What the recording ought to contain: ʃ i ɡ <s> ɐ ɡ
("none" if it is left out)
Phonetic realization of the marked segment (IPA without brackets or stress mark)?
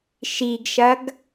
ʃ